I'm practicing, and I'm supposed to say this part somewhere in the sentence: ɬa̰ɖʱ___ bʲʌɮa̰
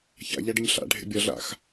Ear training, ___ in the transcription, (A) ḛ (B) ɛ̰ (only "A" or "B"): A